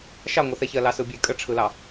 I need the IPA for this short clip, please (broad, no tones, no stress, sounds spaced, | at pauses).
ʃ ɑ ŋʷ ɨ θ ɛ ç ɜ l ɑ s ɯ bʲ e kʼ ə ʈ͡ʂʰ ɯ l ɑ